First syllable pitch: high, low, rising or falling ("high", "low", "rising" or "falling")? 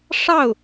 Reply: falling